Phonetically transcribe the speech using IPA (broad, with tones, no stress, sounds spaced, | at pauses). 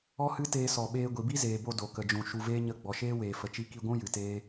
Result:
ɔ˦ h ɨ˦ t eː˧ s ɔ˨ ɓ eː˧ ɡʷ i˨ b i˦ z eː˨ b o˧ d o˨ k ə˨ d͡ʒ ũ˨ ʃ u˧ v eː˦ ɲ ə˦˨ ɡ͡b ɔ˨ ʃ eː˦ w eː˨ f ə˨ t͡ʃ i˧ k i˧ ɡʷ ũ˦ j ɨ˨ t eː˦